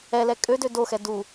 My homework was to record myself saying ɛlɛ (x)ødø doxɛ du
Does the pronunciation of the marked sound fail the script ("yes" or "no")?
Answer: yes